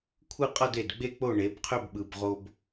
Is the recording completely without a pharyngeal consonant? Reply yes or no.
yes